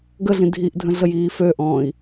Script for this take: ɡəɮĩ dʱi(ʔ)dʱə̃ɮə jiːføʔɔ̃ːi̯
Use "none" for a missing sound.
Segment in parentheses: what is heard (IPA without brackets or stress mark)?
ʔ